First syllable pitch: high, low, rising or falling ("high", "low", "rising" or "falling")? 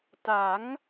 rising